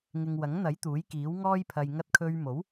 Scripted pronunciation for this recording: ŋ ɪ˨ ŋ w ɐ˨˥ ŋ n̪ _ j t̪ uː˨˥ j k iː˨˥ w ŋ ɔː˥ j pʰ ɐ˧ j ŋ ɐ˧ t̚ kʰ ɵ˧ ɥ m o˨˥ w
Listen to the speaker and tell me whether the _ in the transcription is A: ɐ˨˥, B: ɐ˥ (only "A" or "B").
A